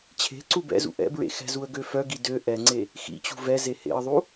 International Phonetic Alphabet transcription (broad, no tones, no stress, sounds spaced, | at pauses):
t͡ɕʰ e̤ ǀ u b ɛ̰ z ṵ ʔ ɛ̰ b ɹ ḛ x ɛ̤ z u ə̯ ɡ ø f œ ɡ i d ø ʔ ɛ ŋ͡ǀ e | x ḭ t͡ɕ ṳ v ɛ z e h ḛ ə̯ ðˤ u